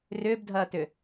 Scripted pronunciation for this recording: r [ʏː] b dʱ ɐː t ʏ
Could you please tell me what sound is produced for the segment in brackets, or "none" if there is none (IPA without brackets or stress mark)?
ʏː